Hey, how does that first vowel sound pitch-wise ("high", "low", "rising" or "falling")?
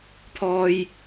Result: high